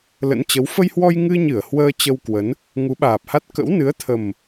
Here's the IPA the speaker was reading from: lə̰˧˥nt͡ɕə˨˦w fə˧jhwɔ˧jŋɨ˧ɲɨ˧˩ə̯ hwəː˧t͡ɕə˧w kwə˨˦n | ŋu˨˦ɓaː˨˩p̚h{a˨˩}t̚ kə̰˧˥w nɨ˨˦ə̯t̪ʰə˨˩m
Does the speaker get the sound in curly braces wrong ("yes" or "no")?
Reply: yes